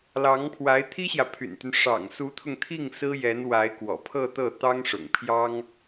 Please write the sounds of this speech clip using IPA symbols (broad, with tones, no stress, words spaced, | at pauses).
lɑ˧˥ŋpʰwa˧˥ɪ̯ t̪ʰi˥ɕjä˨pʰy̰˨˩nt̪y˦n ʂɑ̰˨˩ŋsu˧˥t̪ʰʊ˧ŋt̪ʰi˥˩ŋ sɹ̩˥jɛ˧˥n wa˧˥ɪ̯kwɔ̰˨˩pʰɤ˥˧ t̪ɤ˥˩t̪ɑ˥ŋʂʊ̰˨˩ŋpʰjɑ˥ŋ